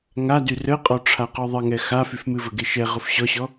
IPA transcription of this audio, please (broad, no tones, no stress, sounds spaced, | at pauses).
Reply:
ŋ a d y r ə qʼ ɔ ʈ͡ʂʰ a q ɔ ðˤ ə ŋ ɛ x a f y f m ɨ v ə ɡ e ʃ ɛ ʁ ʊ f ɕ ɔ ɕ ɔ